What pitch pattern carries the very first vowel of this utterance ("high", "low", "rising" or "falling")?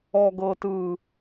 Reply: low